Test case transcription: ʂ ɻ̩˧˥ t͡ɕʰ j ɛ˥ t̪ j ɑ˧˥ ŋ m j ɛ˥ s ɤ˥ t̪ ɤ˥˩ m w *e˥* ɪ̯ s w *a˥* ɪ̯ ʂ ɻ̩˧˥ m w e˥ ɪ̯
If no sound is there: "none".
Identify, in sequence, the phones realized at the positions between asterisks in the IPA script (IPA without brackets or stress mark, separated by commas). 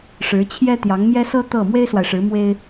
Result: e˥, a˨